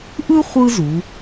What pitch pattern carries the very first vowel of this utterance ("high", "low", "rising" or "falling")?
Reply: high